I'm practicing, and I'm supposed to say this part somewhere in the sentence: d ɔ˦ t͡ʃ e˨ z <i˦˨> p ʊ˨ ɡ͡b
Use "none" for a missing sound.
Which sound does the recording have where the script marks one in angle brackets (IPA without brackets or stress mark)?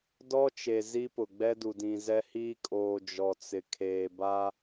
i˦